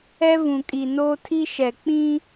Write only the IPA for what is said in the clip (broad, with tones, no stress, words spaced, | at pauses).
ɛ˦vũ˨kʼi˨noː˦ tʰi˦ʃɛ˨ k͡pĩ˦